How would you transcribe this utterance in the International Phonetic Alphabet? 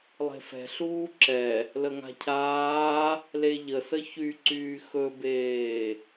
lˠe̤fɛ̤ ɬuːǁɛ | ləŋa̤cʰaː | leʎəsə çyǀyː xɵbeː

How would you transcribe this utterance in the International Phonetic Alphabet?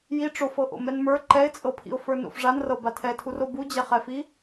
ji ʈ͡ʂofɤʔo̰ mɛnmə˞ ǃɛɪ̯t͡sʼɤpʰḭʊ̯ fə˞no̰fʐanrɤ batʰɛtʰuro bud͡ʑɛχɛfi

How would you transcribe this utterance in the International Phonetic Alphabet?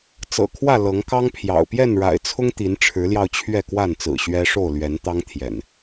t͡sɤ̰˨˩kʰwä˥˨ lɤ˨˦ŋkɑ˦ŋpʰjɑ̰˨˩ʊ̯ pjɛ˥˨nɻa̰˨˩ɪ̯t͡sʰʊ˦ŋ t̪i˨˦nʈ͡ʂʰɻ̩˨˦ljɑ˧ʊ̯ t͡ɕʰɥɛ˥˨kwa˥˨nt͡sɹ̩˨˩ ɕɥɛ˦ ʂo˥˨ʊ̯lɥɛ˨˦nt̪ɑ˦ŋ t̪ʰjɛ̰˨˩n

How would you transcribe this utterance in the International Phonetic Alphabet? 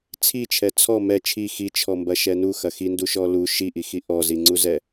t͡sʰit͡ʃʰɛ t͡sʰɔ mɛ t͡ʃʰi xit͡ʃʰɔmbɐʃɛ nuxɐ xinduʃɔ lu ʃiʔixi ʔɔziŋ͡ǀuzɛ

